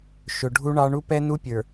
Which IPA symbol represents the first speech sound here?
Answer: ʃ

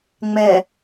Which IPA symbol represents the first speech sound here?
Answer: ŋ͡m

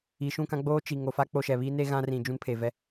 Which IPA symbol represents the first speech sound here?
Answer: i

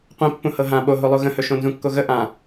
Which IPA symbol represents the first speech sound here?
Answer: qʷ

